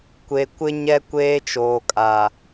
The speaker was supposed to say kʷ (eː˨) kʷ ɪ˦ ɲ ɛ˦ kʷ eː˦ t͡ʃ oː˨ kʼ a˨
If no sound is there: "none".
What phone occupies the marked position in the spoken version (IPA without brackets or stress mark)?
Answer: e˨